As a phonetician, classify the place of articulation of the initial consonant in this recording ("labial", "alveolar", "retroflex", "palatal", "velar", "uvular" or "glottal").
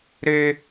alveolar